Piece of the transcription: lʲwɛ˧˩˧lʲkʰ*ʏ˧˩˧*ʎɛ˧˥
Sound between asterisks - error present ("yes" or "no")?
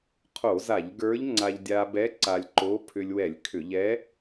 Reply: no